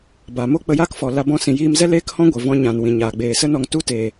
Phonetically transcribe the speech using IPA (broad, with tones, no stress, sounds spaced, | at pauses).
b a˨ m o˦ k͡p ə˧ j a˦ k f ɔ˨ l a˧ b ɔ̃˧ s ĩ˨ j iː˧ m z ɛ˦ l eː˦ k h ɔ̃˦ ɡʷ ɛ˨ v ɔ̃˧ ɲ ã˨ n w ĩ˨ ɲ aː˨ ɡ͡b eː˨ s ə˦ n ɔ˧ ŋ t u˦ t eː˨